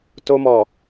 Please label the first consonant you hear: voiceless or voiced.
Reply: voiceless